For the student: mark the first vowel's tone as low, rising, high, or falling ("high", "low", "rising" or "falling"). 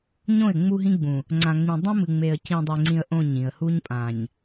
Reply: falling